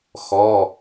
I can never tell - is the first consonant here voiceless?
yes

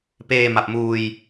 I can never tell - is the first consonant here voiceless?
yes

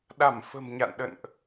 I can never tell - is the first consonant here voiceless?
no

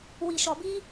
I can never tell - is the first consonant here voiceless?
no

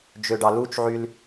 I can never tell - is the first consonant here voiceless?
no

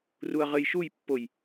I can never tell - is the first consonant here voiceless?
no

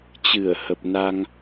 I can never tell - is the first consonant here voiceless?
yes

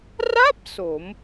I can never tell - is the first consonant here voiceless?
no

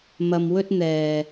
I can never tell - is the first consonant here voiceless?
no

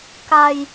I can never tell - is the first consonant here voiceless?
yes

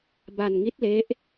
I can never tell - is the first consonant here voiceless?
no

